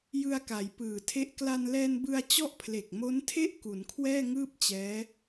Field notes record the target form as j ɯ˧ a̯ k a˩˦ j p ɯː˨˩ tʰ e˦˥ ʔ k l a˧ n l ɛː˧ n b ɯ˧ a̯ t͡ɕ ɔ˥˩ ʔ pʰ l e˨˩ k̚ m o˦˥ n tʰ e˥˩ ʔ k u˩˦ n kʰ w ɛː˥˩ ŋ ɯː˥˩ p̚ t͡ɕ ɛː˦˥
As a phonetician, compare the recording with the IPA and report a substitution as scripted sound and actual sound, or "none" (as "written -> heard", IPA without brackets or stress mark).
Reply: none